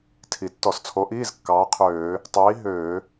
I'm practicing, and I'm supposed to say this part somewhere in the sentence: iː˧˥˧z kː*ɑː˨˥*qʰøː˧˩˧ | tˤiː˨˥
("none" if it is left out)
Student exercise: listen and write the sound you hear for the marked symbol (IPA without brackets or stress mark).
ɑː˨˥